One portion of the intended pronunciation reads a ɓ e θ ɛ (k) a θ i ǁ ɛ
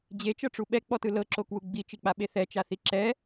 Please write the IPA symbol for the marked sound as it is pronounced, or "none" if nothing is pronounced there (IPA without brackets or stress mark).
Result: t͡ʃ